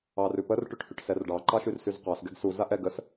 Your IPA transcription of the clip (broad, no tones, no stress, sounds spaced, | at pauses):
ɑ r ʉ p ə r ʈ ʉ ʈ h ʉ ʈ s ɛ r ɖ ɑ ǃ ɑ ʃ y r s y z q ɑ s ɡ ɛ ɡ s u z a ʔ ɛ ɡ ə s